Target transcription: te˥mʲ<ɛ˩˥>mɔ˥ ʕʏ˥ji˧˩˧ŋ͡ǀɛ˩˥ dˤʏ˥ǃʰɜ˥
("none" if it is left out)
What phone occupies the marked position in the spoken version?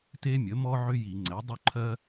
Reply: ə˩˥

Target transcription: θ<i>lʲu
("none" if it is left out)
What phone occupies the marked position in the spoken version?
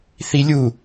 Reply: i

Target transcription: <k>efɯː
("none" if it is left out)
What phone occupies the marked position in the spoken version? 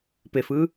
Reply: p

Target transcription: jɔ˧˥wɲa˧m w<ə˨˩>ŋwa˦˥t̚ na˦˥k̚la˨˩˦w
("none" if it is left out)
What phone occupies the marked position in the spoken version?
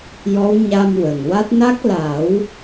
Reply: ə˨˩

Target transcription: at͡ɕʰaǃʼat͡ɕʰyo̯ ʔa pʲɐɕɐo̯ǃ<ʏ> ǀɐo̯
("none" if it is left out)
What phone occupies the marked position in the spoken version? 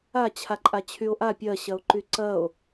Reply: y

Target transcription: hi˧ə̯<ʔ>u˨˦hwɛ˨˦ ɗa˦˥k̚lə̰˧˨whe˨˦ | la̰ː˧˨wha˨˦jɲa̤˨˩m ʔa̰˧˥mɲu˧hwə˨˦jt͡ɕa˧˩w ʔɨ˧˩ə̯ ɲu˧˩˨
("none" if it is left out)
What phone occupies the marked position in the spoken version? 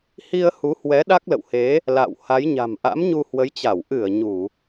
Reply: h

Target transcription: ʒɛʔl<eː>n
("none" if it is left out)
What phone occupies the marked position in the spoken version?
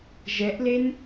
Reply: e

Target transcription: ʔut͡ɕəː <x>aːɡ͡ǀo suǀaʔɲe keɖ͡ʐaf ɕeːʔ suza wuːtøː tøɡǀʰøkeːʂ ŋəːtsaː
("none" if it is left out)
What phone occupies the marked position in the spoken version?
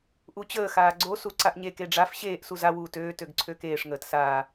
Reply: x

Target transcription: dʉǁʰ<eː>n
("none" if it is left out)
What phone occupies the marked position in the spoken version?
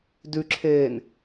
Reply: eː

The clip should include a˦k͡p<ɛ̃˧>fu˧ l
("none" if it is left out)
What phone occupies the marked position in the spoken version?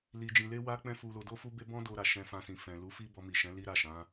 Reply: ɛ̃˦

